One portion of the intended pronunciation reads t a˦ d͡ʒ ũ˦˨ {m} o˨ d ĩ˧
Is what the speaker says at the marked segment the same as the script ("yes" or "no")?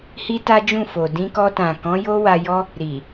no